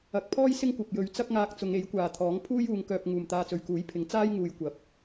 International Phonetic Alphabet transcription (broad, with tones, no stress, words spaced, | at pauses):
ɐ˨k̚pʰɔː˥j sɪ˥ŋkʷɐ˨p̚jɵ˨˧ɥ t͡sɐ˥k̚ŋaː˧k̚ t͡sʊ˨˧ŋe˨˥j kʷaː˨t̪ʰɔː˨˥ŋ pʰuː˥juː˨˧ŋ kœː˧p̚ ŋuː˨mt̪aː˧t͡sɵ˨ɥ kuː˨˥jpʰɪ˨˥ŋ t͡saː˥jŋuː˨j kʷɐ˨˥p̚